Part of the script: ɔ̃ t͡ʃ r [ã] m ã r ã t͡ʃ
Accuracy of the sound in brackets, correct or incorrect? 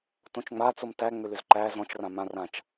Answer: correct